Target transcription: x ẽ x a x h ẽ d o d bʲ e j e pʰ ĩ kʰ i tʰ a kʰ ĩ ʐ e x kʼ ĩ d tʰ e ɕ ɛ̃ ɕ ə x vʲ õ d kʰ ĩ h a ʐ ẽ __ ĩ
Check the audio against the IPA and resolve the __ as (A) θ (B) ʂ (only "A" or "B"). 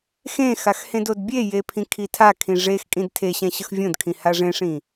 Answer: B